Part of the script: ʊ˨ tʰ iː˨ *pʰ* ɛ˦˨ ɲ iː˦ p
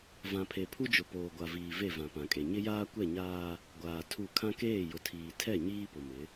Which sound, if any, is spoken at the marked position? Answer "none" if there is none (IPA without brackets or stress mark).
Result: tʰ